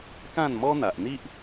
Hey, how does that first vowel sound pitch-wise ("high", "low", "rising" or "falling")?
falling